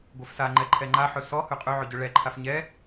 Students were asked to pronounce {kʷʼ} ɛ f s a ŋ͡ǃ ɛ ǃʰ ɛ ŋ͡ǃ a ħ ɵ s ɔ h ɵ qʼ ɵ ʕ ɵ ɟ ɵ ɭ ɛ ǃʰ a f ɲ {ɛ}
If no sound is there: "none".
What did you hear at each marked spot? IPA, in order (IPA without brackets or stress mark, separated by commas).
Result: ɡʷ, ɛ